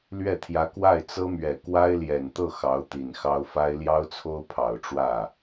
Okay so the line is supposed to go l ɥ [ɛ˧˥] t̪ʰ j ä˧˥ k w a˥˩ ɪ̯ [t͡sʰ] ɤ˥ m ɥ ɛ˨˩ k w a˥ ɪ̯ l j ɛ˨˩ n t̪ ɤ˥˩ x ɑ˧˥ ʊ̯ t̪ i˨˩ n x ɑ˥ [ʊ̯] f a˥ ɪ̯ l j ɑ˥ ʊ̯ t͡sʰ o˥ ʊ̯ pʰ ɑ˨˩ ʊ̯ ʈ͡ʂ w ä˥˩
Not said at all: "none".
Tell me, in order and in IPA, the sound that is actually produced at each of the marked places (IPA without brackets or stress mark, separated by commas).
ɛ˥˩, t͡s, ʊ̯